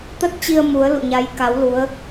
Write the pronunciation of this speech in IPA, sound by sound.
t̪ ə˦˥ t̚ t͡ɕ i˧ ə̯ m u˨˦ ə̯ l ṵ˧˨ ɲ a˨˦ j k a˨˦ w l u˨˦ ə̯

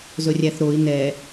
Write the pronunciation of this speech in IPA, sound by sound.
z ɵ rʲ æ θ ɾ o i̯ n ɛ

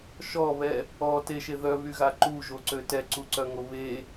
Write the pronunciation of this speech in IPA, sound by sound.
ʃ ɔ β ɛ | ɔ t e ʃ e ð œ β y ɣ a ǃ u ʒ o ǀ ø t ɛ ǀ u ǀ œ ŋ o β e

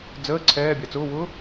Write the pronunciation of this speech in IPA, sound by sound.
d͡z əː ǀʰ ɛː bʲ a t͡s ʊː w ʊː

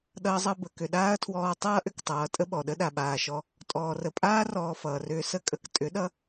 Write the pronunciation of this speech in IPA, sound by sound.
ɗ ʌː˦ zˤ ʌ˦ b ə˨ k ʏ˨ ɗ aː˦ ɐ̯ tʰ w ɔː˧ tˤ ʌː˦ ʔ ʏ˧ k tˤ ʌː˨ tʼ ə˦ ɓ ɔ˨ ɗ ə˦ ɗ a˨ ɓ aː˨ ʃ ɔ˧ | tʼ ɔː˨ r ə˨ pʼ aː˦ r ɔː˧ f ʌː˨ r ʏː˧ s ə˦ kʼ ə˧ k tʼ ʏ˨˦ ɗ ʌ˧

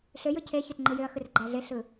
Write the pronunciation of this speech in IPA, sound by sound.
ɬ ø j ɯ cʰ e ç ø t ŋ͡ǃ ɯ j ø ɐ̯ x ɯ r ɡ͡ǃ æ ɮ e ɬ ɯ

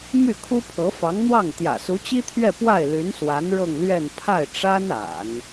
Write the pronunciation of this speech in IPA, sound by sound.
m y˥˩ kʰ u˥ pʰ ɤ˧˥ f ɑ˧˥ ŋ n̪ w ɑ˥˩ ŋ t̪ j ä̰˨˩ s u˧˥ t͡ɕ i˥ t̪ʰ ɥ ɛ˥˧ p w a˥˩ ɪ̯ l y˧˥ n s w a˧˥ n ɻ ɤ˥˧ ŋ l ɥ ɛ˥˧ n pʰ a˥˩ ɪ̯ ʈ͡ʂ a˥ n a̰˨˩˦ n

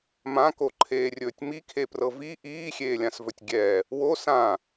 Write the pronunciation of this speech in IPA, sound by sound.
m ã k o ǃʰ eː rʲ ɵː tʲ m i kʰ e p r ɤ v i ʔ iː xʲ eː lʲ ã s v ɵ tʲ ɡʲ ɛ | w o s ã

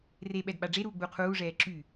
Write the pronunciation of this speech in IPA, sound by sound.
r e ɓ ɛ d ɓ a ɖ͡ʐ e ɾ uː ɡ͡b u qʰ uː ʐ ɛː ǁ y

